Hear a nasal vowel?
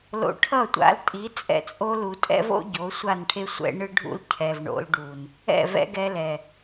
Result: no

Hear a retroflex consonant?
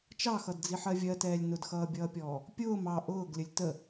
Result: no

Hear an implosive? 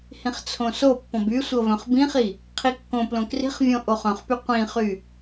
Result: no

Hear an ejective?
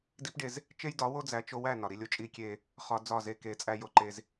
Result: yes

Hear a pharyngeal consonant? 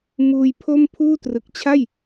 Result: no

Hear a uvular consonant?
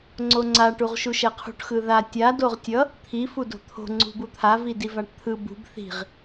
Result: yes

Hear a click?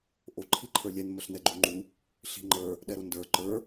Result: yes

